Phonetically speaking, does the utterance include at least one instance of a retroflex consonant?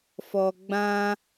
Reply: no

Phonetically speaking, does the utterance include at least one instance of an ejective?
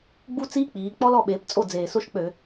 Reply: yes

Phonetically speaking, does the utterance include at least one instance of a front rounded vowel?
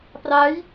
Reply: no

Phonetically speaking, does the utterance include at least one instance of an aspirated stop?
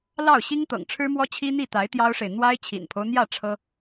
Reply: yes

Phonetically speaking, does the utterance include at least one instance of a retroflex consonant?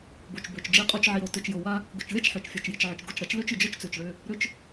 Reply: yes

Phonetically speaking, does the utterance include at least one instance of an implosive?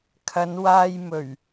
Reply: no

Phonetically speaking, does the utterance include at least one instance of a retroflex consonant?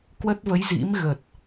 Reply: no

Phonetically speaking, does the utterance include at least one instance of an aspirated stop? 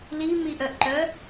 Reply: no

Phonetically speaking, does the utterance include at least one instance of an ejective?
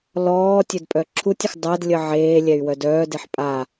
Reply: yes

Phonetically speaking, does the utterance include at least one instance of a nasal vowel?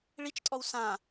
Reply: yes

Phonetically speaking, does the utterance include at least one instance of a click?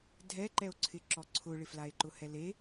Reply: yes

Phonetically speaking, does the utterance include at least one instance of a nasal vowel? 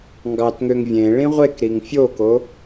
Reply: yes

